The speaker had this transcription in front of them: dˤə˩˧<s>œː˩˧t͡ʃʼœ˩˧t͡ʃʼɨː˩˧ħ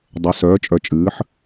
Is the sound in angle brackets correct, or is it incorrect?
correct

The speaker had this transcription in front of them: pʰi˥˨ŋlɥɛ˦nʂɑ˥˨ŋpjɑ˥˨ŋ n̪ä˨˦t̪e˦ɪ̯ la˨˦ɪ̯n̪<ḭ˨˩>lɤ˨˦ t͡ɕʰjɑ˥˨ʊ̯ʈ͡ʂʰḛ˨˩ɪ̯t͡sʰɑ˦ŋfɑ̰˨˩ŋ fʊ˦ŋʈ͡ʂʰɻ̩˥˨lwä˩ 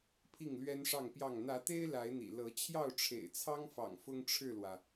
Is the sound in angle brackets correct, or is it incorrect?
correct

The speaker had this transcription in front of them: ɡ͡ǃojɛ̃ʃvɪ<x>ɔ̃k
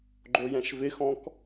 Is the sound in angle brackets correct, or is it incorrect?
correct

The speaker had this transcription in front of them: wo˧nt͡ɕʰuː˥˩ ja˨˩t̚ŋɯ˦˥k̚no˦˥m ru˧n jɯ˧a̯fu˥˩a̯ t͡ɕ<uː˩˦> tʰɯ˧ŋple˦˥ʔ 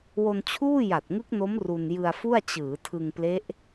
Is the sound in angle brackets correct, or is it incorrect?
incorrect: ɯː˩˦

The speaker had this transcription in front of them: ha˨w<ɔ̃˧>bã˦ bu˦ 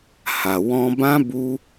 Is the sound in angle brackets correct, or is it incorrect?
correct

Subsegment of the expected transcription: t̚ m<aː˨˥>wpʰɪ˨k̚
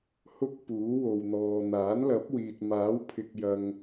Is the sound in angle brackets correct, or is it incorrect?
correct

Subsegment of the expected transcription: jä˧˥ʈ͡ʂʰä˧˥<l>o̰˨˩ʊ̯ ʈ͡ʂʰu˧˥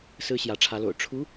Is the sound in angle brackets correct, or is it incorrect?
correct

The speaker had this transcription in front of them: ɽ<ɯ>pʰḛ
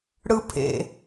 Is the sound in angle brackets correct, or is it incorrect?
correct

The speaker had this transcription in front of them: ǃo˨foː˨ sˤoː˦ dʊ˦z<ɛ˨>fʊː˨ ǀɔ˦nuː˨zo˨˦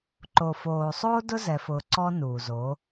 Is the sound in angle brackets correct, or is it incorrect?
correct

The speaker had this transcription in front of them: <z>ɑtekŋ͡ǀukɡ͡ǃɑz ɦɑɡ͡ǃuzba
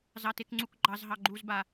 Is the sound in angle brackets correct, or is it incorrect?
correct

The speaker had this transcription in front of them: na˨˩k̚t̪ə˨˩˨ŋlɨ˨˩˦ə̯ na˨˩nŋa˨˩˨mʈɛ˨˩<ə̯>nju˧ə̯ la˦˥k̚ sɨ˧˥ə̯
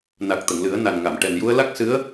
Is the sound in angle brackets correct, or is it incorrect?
incorrect: none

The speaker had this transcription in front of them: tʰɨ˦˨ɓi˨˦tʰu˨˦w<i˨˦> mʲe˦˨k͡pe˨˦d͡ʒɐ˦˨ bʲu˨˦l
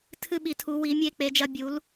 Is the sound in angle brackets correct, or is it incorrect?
correct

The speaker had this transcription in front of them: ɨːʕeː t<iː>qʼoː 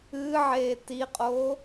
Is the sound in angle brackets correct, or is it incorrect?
incorrect: i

